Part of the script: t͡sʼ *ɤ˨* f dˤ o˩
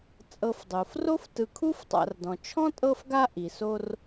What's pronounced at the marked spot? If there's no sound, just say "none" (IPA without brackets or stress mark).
ɤ˨